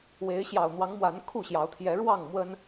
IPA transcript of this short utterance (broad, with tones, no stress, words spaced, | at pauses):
we˨˦ɪ̯ɕjɑ˨˩ʊ̯n̪wɑ˨˦ŋmwa˨˦n kʰu˥˨ɕjɑ˨˦ʊ̯ t̪ʰjɛ˨˦ ɻwɑ˥˨ŋmwə˦n